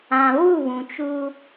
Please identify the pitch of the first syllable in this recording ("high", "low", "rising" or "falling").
low